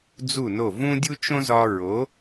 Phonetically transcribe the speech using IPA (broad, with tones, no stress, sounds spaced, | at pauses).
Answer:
d͡z u˥˩ n o˥˩ v ũ˥ dʲ u˥ t͡ʃ õ˥ z ɒ˧ ɹ o˩˥